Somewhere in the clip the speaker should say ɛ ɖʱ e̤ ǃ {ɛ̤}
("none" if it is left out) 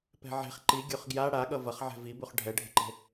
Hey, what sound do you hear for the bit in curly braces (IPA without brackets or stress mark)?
e̤